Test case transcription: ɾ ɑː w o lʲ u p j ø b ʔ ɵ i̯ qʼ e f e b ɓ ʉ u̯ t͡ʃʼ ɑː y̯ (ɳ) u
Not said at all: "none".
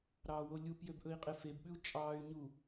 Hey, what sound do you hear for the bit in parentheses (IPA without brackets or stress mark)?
ɲ